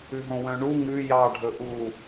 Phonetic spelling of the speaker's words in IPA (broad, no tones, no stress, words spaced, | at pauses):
ʉɦõwœ̃ɳu ŋʉ jɑ ɖʱɵʔu